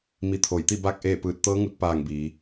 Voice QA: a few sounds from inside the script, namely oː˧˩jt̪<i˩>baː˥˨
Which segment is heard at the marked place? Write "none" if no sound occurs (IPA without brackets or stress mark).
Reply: i˥˨